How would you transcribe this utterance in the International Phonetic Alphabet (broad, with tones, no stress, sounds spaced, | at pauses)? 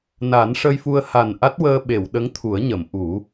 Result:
n a˨˩˦ n ʂ ə˧ j f u˧ ə̯ h a˨˩ n ʔ a˦˥ t̚ w əː˧ ɓ e˨˩˨ w ɗ ə˧˥ ŋ t̪ʰ u˨˩˦ ə̯ ɲ ə˨˩˨ m ʔ u˨˩˦